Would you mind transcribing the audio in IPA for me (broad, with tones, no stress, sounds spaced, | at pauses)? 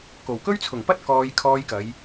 k o˨˩ w k ɵ˥ ɥ t͡sʰ ʊ˨˩ ŋ p ɐ˥ t̚ k ɔː˧ j kʰ ɔː˧ j k ɐ˨˧ j